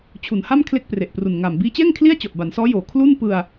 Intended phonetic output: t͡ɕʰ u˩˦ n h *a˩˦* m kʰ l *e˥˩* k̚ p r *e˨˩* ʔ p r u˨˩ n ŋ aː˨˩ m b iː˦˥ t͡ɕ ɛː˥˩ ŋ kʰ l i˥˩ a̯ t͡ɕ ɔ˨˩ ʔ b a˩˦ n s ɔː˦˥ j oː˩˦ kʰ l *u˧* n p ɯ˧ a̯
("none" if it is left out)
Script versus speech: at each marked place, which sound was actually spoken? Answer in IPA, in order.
a˥˩, e˥˩, e˨˩, u˥˩

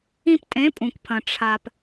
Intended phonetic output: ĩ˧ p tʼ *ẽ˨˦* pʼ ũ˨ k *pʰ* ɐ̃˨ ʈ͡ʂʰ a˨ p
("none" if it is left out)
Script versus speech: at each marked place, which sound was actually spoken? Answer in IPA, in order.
ẽ˨˦, pʰ

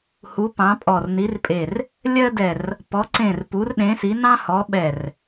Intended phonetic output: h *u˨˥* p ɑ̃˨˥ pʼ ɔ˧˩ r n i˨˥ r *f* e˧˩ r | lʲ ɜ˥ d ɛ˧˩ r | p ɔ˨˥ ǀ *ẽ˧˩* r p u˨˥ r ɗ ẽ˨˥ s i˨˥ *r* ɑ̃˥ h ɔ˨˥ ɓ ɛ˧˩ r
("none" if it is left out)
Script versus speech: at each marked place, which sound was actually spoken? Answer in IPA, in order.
u˨˥, pʼ, ẽ˧˩, n

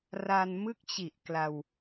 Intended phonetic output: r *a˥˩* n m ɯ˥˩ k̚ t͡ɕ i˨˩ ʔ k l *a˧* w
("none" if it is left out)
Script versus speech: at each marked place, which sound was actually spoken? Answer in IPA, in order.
a˧, a˧

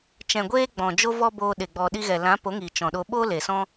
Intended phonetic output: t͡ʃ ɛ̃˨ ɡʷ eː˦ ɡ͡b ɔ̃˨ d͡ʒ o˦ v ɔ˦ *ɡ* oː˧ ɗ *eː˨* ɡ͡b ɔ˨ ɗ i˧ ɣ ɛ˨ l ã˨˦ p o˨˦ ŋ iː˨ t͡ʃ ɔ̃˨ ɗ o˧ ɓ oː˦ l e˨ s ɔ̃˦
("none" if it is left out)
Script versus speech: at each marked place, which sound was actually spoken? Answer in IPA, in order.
b, e˨

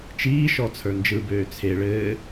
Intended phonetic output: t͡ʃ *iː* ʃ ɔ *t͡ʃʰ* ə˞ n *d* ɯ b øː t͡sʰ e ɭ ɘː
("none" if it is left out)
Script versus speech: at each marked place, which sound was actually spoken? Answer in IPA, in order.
iː, t͡sʰ, d͡ʒ

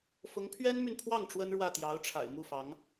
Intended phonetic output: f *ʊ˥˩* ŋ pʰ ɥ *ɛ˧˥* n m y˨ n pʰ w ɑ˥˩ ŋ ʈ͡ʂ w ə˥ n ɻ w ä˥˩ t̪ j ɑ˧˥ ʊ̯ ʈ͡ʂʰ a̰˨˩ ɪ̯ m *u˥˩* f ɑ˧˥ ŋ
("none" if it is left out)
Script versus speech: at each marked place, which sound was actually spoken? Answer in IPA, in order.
ʊ˧˥, ɛ˥, u˥˩

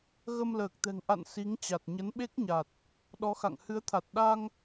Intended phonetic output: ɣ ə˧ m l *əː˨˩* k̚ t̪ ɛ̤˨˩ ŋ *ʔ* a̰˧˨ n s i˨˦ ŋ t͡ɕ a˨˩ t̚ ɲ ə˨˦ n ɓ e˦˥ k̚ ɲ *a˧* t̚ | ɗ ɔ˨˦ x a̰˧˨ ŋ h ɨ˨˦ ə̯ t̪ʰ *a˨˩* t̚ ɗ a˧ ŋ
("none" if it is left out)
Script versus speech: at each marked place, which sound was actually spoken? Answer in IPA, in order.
əː˨˩, ʔ, a˨˩, a˨˩

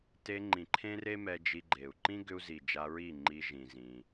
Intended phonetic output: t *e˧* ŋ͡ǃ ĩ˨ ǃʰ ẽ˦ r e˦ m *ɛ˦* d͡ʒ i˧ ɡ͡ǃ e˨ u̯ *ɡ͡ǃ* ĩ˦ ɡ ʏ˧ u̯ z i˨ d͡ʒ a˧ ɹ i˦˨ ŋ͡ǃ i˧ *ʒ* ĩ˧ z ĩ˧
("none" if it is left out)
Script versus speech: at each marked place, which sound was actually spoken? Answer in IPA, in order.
e˧, ɛ˧, ǃ, ʒ

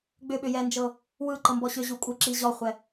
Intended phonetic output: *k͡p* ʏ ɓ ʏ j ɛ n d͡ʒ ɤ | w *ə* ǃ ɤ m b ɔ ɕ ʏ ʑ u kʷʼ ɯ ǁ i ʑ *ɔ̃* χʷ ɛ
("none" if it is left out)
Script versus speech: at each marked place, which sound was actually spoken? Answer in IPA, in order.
ɡ͡b, ɯ, ɔ

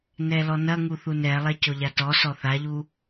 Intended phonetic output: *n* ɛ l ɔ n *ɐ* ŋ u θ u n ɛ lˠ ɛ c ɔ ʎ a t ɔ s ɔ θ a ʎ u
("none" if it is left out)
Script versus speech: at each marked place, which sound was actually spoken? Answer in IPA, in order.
n, ɐ

